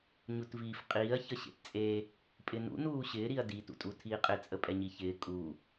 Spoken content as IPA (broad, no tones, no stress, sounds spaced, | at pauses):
ɲ u t v iː f qʼ iː ɐ̯ ç ə ɕ ḛ t t͡sʼ e | pʼ ɪ n ṵ n uː ɕ ɪː ɾ i ɐ̯ d i t ṵ tʼ u tʰ iː qʼ ɪ t͡sʼ ə pʼ ɛ ɲ i ç ɪː kʼ u